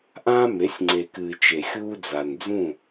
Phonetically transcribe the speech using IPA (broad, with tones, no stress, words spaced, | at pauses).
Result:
ʔãː˦me˨˦sʲŋ͡ǀe˨kɨː˨ t͡ʃe˨xʲuː˦d͡za˨n d͡zũ˦˨